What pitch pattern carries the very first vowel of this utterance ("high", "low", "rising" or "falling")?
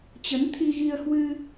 rising